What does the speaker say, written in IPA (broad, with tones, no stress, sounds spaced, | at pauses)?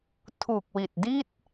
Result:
tʰ u˨˩ k̚ w i˨˩ t̚ d i˥˩ t̚